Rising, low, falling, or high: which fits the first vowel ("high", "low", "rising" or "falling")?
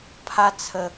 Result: high